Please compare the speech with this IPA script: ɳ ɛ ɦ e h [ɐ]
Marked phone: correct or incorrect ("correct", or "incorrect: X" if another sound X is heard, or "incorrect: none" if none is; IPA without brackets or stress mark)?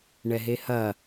correct